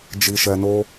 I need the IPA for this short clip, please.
d͡ʒ i˧ ʃ ɛ˧ n o˦

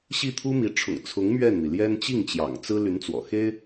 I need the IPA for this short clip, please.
ɕ i˥˩ t̪ʰ u˥ m i˧˥ ʈ͡ʂʰ ʊ̰˨˩ ŋ t͡sʰ ʊ˧˥ ŋ m ɥ ɛ˥˩ n n̪ i˩ l j ɛ˥ n t͡ɕ i˥˩ ŋ t͡ɕ j ɑ̰˨˩ ŋ t͡s ɹ̩˥ l y˧˥ n t͡s w ɔ̰˨˩ x e˥ ɪ̯

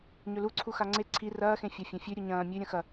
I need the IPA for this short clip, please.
ɲ ɵ l u ǀʰ u x a ŋ͡ǀ e ǀʰ i r ɐː x ẽ fʲ a fʲ ɐ̃ fʲ ʉ ɾʲ u ɲ ɐ̃ː mʲ ʉ ɾʲ ɐ̃ x ɐ

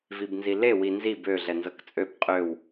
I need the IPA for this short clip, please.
v i b n z i l e w i n z i b ø ɮ ɛ n z ɤ k t͡sʼ ø b qʼ ø w

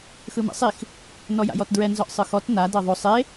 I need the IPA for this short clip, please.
x ɯ m ɛ̰ sˤ i x | n ɔ j a̰ j ɔ t d ɹ ɛ n z ɔ ʔ sˤ ɯ x ɔ t n a d ɤ ðˤ o sˤ e

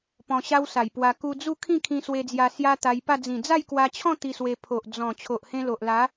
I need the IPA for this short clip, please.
p ɔ̃˧ ɕ a˦ w s a˨˩ j p w a˧ k u˧ d͡z u˥˧ kʰ ĩ˥˧ kʰ ĩ˧ s w e˧ d͡z j a˧ s j a˦ t̪ a˧ j p a˥˧ d͡z ĩ˨˩ d͡z a˥˧ j k w a˧ t͡ɕʰ ɔ̃˥˧ t̪ i˧ s w e˧ pʰ o˨ ʔ d͡z ɔ̃˨˩ t͡ɕʰ o˨ ʔ h ẽ˧ l o˨ ʔ l a˨˦

